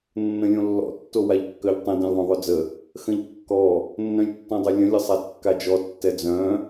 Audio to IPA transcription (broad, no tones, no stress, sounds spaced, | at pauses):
nː ə̃ lʲ õ lː ɔ̰ tː o w a ʎ kː œ ʎ tˤ ə̃ d ɛ̃ lʲ ðˤ œ̃ ðˤ ø d͡z ə | x ə̃ ʎ kː ɔ | nː œ̃ lʲ tː ɔ̃ dˤ ø lʲ ə̃ lʲ ə sˤ a d kː a d͡ʒ ɔ tː ɛ d͡z œ̃